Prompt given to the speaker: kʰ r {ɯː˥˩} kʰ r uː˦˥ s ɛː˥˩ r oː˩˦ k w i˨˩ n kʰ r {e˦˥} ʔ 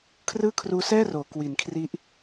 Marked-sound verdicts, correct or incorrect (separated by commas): correct, incorrect